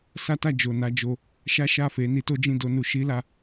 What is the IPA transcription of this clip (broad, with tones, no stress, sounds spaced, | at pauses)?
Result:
s a˦ t a˦˨ d͡ʒ o˨ n a˧ d͡ʒ o˧ | ʃ a˦ ʃ a˦˨ f e˨˦ n i˧ t o˦ d͡ʒ ĩ˦˨ d o˧ n u˧ ʃ i˦ l a˧